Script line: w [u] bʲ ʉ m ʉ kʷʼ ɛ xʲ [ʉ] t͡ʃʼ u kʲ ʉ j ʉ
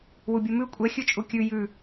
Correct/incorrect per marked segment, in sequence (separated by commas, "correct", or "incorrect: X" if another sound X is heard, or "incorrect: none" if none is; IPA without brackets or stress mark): correct, correct